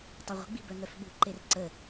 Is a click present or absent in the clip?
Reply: present